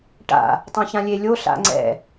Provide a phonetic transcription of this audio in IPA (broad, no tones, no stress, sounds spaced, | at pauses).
ʈ a̰ | tˤ ã ç ã lʲ e lʲ o ɬ a̰ ŋ͡ǀ ɛ̰